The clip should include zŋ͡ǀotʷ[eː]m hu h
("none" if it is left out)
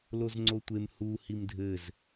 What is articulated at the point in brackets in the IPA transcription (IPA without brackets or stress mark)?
e